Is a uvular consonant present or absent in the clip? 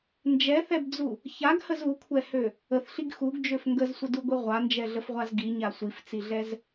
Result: present